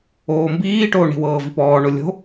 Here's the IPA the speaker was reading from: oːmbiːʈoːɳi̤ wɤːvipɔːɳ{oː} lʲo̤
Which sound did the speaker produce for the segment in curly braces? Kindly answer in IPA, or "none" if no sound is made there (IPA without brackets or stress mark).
o